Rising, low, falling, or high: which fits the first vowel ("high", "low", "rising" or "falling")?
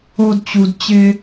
high